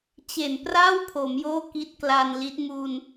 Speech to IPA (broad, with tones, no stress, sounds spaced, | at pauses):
t͡ɕ e˨˩ n p r a˥˩ w pʰ o˩˦ m j oː˥˩ k i˦˥ t̚ k l aː˧ n l i˦˥ t̚ m u˧ n